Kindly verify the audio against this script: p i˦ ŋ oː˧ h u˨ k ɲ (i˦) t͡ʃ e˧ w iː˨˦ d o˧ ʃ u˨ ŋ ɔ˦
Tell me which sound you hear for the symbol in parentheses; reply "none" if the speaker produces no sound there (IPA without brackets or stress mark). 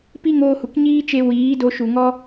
iː˦